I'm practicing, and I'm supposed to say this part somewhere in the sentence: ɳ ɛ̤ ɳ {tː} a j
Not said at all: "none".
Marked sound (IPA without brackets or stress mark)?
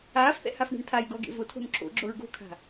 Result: tʰ